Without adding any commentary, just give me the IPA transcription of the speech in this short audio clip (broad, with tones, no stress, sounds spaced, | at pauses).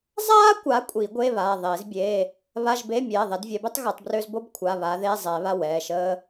zˤ aː˥ kʷ a˨˦ kʷʼ i˨˩˦ ɡʷ e˧˥˧ β aː˩˧˩ ðˤ eː˨˩˦ z bʲ eː˧˥˧ | β a˧˥˧ ʒ b e˧˥˧ mʲ ɛː˩˧˩ ðˤ ɛ˨˦ d vʲ ɛ˨˦ b ø˥ tˤ ɣ əː˨˩˦ tˤ b r øː˥ z b o˥ b kʷʰ a˩˧˩ β aː˨˦ ð eː˧˥˧ zˤ ɛː˨˩˦ β a˧˥˧ w ɛː˩˧˩ ʃ əː˥